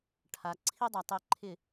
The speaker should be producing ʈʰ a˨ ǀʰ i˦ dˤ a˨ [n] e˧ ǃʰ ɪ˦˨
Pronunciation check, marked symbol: incorrect: tˤ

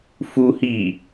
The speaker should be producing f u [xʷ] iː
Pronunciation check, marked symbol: incorrect: h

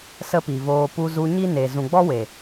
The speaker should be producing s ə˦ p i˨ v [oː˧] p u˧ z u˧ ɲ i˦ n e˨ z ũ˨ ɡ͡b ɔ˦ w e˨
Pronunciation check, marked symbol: correct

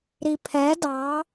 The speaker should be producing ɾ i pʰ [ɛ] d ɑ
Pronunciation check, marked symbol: correct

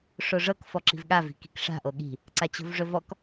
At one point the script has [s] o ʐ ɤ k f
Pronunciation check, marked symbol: incorrect: ʂ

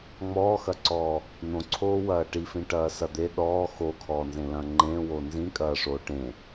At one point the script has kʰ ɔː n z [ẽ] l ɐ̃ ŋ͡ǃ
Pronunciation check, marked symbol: correct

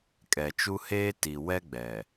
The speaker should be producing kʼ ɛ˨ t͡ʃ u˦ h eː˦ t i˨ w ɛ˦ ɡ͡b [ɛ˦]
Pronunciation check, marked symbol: incorrect: ɛ˨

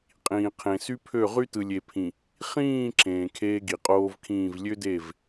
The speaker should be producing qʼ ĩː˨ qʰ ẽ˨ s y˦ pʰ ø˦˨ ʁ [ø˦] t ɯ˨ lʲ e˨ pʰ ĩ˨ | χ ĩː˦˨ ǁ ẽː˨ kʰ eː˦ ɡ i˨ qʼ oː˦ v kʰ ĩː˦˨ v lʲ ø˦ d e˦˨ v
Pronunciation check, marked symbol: incorrect: y˦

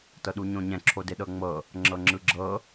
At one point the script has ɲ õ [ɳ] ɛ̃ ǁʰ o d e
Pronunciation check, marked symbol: incorrect: ɲ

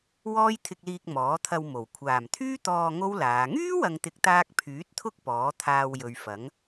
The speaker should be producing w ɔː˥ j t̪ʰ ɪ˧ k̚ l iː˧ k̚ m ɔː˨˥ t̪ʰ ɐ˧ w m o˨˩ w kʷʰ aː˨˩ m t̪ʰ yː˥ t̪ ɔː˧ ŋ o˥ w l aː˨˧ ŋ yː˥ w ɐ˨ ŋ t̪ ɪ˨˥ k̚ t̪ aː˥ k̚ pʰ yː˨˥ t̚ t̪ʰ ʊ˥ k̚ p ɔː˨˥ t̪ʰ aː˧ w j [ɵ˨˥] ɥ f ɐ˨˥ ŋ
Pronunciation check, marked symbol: incorrect: ɵ˨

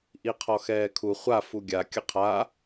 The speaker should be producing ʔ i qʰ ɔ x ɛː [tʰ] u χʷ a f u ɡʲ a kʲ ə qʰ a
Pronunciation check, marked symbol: incorrect: kʰ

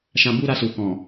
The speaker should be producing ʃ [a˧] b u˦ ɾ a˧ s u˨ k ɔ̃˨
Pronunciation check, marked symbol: incorrect: ã˧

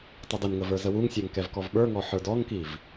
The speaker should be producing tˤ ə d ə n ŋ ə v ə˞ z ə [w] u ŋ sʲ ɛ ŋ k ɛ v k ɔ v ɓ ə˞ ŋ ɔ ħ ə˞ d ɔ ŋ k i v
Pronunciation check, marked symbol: correct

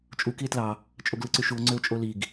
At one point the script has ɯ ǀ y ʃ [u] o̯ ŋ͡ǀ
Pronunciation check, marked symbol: correct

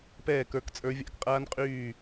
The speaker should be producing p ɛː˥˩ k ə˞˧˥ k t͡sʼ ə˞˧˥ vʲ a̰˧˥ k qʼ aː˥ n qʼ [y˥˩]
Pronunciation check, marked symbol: incorrect: yː˥˩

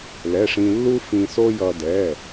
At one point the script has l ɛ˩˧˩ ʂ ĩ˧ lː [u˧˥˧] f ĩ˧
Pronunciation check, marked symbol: incorrect: u˥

